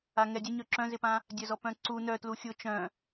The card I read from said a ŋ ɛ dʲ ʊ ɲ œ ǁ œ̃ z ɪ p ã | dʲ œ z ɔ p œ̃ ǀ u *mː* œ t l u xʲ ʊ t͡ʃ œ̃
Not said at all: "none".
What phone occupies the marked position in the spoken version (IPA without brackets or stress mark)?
n